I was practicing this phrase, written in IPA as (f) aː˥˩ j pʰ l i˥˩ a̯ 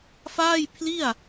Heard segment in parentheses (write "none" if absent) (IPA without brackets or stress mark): f